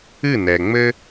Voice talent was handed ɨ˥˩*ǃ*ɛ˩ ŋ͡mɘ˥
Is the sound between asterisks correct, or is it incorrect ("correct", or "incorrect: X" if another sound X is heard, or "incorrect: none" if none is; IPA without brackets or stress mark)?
incorrect: n